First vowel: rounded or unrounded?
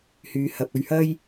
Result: rounded